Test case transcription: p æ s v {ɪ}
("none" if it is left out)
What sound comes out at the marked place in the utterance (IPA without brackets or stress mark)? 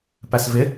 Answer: ɪ